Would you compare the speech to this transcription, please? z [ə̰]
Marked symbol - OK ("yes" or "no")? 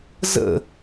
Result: yes